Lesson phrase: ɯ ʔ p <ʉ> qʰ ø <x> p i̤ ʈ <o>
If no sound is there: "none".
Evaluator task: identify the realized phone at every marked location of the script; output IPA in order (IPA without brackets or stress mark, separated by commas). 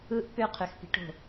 ø, x, o̤